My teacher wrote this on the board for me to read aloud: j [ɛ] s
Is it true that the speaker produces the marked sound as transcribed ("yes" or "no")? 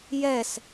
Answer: yes